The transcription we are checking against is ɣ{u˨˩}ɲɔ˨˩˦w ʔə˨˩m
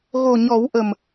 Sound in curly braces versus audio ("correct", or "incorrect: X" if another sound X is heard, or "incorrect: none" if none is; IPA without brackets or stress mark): incorrect: o˨˩